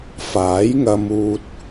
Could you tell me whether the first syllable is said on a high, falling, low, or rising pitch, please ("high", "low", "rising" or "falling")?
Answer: rising